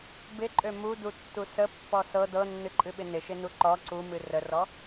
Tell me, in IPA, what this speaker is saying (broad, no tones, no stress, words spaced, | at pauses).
bɪǃʼø mudutːu səpːɔ sɤ dɤnːɨǃʼɨɓɪ nɪʃɪnu ǃɔ ǀumɨ rərɔ